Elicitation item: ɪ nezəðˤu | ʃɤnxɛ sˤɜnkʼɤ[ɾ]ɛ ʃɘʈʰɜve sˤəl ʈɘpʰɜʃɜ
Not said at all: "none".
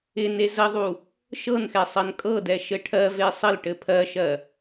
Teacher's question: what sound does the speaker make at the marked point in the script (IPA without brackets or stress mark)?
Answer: d